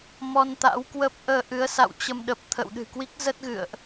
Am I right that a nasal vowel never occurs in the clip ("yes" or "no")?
yes